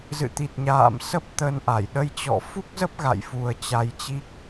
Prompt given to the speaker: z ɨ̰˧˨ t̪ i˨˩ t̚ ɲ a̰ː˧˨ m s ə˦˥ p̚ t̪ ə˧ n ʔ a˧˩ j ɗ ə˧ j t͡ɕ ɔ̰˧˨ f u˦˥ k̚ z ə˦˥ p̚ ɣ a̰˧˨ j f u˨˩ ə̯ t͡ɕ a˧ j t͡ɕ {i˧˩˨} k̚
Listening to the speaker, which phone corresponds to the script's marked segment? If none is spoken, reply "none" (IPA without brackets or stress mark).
i˦˥